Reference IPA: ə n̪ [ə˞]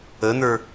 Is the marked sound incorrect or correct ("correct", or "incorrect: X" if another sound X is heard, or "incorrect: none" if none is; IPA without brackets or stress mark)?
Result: correct